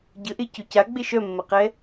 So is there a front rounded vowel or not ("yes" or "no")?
yes